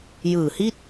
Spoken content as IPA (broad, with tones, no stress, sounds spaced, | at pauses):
j ɯː˨˩ h i˥˩ t̚